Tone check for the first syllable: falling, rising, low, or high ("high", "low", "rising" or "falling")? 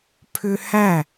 high